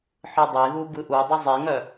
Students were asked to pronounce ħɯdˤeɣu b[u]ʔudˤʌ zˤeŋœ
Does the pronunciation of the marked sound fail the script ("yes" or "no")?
yes